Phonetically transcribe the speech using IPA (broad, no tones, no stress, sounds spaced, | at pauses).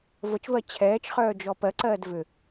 v ə t͡ʃ v ɜ t͡ɕʰ ɛː t͡ʃ χ œː d͡ʒ ɔ p ɜ ǀ ɜː d v ʏ